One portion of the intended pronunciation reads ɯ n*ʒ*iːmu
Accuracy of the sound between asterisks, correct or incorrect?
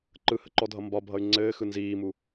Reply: incorrect: z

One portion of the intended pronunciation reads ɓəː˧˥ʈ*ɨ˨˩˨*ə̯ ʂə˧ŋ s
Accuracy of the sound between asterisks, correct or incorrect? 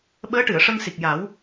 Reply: correct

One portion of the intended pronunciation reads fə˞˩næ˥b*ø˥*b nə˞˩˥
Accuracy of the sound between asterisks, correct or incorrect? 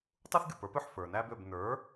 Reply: incorrect: ø˥˩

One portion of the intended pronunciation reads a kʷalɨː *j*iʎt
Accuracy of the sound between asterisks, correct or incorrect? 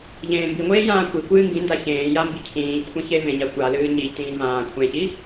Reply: incorrect: ɲ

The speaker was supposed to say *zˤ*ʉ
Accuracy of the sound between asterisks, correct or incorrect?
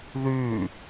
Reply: incorrect: ð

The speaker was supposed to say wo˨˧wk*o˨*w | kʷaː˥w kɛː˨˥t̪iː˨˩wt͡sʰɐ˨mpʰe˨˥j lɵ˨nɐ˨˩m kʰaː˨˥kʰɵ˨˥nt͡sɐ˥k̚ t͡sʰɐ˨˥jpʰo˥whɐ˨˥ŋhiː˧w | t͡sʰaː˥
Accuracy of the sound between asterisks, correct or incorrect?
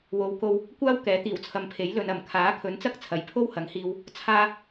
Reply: incorrect: o˧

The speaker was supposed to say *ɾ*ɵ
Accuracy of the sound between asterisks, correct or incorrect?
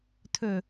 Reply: incorrect: tʰ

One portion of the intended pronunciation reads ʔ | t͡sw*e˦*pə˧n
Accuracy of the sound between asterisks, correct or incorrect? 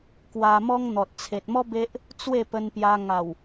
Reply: incorrect: e˥˧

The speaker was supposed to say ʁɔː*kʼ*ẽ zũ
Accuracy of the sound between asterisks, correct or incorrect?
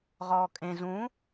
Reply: correct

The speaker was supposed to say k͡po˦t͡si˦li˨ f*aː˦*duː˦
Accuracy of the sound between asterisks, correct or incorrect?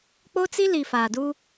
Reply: incorrect: aː˨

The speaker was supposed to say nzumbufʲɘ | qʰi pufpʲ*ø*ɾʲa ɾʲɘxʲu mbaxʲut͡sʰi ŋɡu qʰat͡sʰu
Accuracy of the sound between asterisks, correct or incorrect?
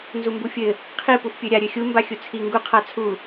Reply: correct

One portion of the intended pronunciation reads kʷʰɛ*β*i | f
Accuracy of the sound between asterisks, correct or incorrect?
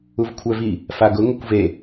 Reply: incorrect: v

